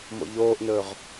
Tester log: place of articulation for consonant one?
labial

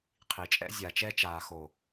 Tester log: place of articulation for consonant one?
uvular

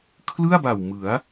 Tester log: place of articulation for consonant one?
velar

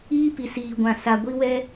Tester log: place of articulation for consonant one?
labial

